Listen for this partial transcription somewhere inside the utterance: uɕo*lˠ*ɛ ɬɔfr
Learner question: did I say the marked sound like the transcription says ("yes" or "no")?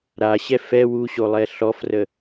yes